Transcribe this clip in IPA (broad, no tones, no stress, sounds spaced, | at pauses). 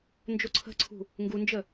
n d͡ʒ o ǀʰ ə̤ ǀʰ ṳ | ŋ ɡ u n d͡ʒ ə